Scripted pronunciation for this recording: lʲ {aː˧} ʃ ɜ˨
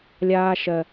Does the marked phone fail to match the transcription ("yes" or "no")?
no